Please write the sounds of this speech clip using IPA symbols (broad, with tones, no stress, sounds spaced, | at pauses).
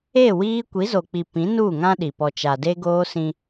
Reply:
e˦˨ w iː˦ kʷ i˨˦ z o˨ k͡p i˨ p ĩ˨˦ n uː˦˨ ŋ ã˦ ɗ i˨ p ɔ˨ t͡ʃ a˨ d e˦ ɡ oː˦ s ĩ˦